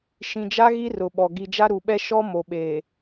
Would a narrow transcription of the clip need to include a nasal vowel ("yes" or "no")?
yes